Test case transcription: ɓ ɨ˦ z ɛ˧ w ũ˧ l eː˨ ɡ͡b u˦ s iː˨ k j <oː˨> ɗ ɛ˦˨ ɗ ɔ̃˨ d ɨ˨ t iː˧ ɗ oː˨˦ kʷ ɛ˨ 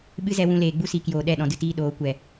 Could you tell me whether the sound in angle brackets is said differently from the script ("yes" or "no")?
no